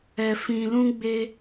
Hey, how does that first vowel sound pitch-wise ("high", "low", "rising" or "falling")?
low